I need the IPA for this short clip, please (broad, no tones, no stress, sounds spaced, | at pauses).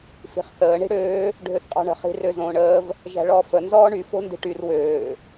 f i̤ χ θ əː ɳ i̤ ɽ øː | ɖʱ ø θ qʼ ɔ̤ ɳ ə̤ χ i̤ r ø z õː ɳ əː v | ʒ æ̤ ɭ ɔː f ə n z ɔː ɳ y f o̤ n d i̤ ʈ y r w øː